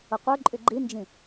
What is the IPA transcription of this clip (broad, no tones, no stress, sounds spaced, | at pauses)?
ʊ qʷ ə˞ ǃʼ y ɡ͡ǃ i n d͡ʒ ĩ